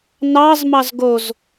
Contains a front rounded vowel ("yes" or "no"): no